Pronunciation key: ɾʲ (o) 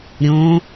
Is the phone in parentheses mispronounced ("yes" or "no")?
yes